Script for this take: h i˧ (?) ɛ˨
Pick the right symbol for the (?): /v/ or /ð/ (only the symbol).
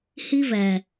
v